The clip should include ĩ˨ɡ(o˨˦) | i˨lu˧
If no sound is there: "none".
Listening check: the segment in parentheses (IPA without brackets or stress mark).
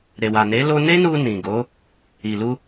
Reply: o˨˦